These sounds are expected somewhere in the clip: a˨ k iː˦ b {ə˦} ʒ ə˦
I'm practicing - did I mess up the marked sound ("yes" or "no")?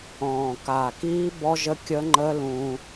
yes